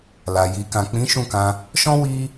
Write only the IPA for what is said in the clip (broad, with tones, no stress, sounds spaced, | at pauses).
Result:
l a˨ j i˨ k ã˨ k͡p ĩ˨˦ ʃ ũ˦˨ k ã˧ | ʃ ɔ̃˦ w i˦